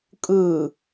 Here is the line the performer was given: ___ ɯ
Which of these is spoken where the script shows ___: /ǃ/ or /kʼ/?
kʼ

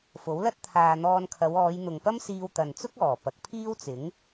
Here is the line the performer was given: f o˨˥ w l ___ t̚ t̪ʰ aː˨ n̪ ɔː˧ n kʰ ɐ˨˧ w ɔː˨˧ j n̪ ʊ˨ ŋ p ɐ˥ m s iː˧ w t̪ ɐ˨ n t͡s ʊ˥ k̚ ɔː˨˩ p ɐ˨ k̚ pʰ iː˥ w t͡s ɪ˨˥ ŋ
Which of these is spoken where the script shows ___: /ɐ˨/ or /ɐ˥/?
ɐ˥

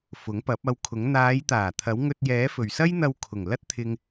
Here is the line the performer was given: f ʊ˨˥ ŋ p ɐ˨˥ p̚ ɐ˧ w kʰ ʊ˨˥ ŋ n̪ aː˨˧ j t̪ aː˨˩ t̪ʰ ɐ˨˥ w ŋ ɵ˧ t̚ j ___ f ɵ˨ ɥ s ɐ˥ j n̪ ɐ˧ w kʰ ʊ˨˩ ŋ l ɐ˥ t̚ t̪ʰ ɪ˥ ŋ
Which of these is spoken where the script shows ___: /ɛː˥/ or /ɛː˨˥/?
ɛː˨˥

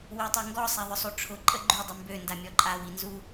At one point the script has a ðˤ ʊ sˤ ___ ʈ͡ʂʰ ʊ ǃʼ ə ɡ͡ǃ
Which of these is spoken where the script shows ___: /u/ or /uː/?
u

